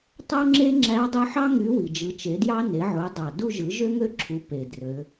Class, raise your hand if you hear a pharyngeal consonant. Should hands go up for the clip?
yes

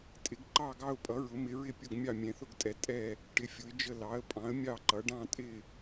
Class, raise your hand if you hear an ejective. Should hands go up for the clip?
yes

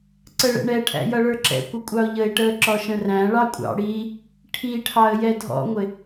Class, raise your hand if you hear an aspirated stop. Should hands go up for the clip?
yes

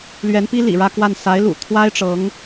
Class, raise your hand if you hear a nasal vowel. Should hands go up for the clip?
no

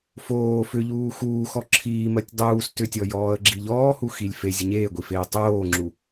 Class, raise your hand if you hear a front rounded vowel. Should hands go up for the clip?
yes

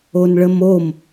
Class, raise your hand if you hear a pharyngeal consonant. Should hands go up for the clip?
no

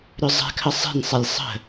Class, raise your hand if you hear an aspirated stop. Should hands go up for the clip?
yes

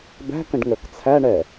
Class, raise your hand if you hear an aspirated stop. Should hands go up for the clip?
yes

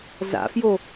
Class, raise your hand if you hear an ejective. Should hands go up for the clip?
no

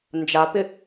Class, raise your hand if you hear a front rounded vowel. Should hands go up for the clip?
no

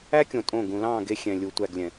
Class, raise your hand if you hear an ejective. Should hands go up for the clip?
yes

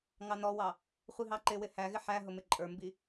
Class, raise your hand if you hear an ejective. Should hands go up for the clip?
yes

